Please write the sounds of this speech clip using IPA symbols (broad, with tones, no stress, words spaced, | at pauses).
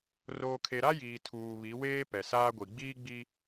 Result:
roː˨kʰe˨ ɾa˦jiː˨ tʰuː˨βi˨˦ weː˦ pɛ˨saː˦ɡʷi˨ ɡ͡biː˦ɡ͡bi˦